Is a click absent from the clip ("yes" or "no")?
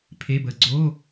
no